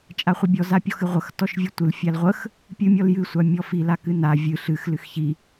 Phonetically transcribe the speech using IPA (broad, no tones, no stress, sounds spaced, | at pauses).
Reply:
t͡ʃʼ a χʷ ɨ bʲ ɔ z a pʲ ɔ x ɨ ʁʷ ə x t ɔ ʃ vʲ ɨ tʷ ɨ l fʲ a l ʁʷ ə x | pʲ ɨ mʲ ɔ l j ɨ sʷ a mʲ ɔ f i l a k ɨ n a vʲ ɨ ɬ ɨ x l ɨ x ç i